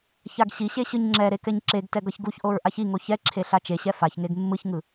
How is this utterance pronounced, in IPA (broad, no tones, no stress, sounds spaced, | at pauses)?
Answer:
ç a ɡ ɕ i ɕ e ɕ ɯ ɲ ŋ͡ǁ ɛ ɾ e k ɛ ɲ ǁ e ɡ t ɛ ɡ ʌ ç ɡ u ç ʔ o ɹ ʔ a ç i ŋ o ç ɛ ǁʰ e ɬ a t͡ʃ e ɕ ɛ f a ç ŋ e ɡ mː ɯ ç ŋ ɯ